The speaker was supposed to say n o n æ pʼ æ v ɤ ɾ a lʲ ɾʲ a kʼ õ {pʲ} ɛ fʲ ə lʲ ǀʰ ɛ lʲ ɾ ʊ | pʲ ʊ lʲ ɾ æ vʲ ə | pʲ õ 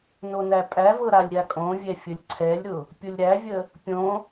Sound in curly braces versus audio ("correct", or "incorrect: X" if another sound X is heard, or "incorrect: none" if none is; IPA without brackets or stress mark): incorrect: vʲ